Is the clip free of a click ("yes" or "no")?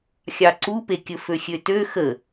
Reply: no